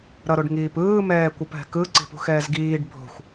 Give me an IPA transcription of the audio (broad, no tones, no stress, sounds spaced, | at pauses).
ɾ ʌ ɾ o ɖ ŋ iː p ɯː m ɛː kʷ ʌ p ɦ ɛ̤ k ɯ ǀ i̤ p ṳ x ɛː z ɡ iː ɖ bʱ o̤ xʷ